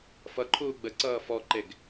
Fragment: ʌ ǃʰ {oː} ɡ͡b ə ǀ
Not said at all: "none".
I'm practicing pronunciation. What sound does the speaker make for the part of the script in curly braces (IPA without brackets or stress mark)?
uː